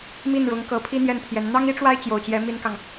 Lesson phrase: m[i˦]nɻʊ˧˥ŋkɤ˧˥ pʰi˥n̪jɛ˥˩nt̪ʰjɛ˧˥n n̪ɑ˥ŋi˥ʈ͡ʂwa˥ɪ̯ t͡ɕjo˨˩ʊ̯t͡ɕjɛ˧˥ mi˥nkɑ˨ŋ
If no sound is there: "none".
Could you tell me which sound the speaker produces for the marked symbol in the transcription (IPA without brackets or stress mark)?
i˥˩